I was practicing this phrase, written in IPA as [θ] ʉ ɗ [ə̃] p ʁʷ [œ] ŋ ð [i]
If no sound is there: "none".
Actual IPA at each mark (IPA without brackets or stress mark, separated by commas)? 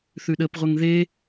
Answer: θ, ə, ɛ, e